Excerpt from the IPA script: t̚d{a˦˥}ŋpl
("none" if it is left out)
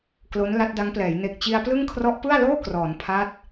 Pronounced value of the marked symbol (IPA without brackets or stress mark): a˦˥